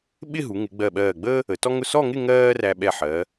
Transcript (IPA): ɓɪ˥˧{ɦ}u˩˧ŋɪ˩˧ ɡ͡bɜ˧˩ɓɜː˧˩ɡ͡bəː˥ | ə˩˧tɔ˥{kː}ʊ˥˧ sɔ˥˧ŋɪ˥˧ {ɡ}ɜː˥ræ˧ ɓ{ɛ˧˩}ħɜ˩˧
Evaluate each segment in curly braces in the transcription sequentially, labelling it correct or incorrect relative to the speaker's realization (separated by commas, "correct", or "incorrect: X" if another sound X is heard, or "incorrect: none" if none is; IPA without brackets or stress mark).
correct, incorrect: ŋ, incorrect: ŋ, correct